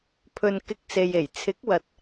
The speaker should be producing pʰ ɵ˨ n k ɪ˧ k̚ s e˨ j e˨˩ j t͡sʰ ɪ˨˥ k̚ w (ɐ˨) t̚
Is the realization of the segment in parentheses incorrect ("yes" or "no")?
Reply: no